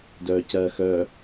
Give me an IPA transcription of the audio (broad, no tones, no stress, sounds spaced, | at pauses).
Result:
d œː c ɜː x œ